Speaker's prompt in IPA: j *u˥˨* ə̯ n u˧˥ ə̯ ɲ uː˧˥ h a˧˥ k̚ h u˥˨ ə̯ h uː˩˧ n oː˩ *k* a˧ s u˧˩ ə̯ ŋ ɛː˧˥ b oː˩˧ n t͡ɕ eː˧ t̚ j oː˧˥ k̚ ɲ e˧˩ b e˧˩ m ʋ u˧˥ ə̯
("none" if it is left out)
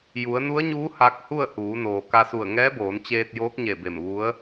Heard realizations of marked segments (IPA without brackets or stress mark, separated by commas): u˩˧, k